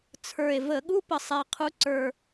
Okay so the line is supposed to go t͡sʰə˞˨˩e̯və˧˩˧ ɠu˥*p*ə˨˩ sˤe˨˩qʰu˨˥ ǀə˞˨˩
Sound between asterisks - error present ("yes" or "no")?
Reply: no